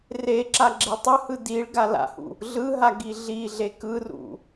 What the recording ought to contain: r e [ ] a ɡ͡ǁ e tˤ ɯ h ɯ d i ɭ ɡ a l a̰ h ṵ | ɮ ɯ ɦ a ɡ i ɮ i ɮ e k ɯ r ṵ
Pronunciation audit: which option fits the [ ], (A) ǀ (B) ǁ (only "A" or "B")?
B